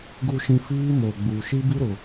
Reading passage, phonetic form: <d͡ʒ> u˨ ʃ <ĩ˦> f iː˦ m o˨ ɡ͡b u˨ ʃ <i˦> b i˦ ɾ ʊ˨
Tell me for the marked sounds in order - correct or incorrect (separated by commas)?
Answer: incorrect, incorrect, correct